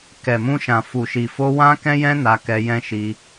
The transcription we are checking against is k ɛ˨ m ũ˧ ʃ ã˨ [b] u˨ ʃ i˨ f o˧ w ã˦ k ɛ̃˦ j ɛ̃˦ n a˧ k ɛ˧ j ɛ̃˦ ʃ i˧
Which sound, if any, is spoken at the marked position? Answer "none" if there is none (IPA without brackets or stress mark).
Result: f